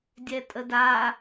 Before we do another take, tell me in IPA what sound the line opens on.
dʲ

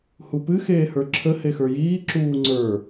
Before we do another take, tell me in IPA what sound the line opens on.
h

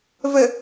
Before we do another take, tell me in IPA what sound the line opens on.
v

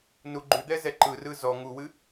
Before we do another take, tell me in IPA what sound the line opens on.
n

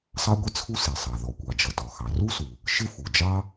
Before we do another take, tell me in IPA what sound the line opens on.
sˤ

